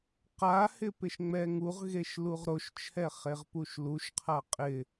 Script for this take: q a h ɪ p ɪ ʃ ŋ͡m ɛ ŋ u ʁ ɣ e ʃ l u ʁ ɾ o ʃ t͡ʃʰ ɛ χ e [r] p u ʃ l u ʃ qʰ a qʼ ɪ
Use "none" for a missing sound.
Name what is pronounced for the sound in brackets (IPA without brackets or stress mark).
ʁ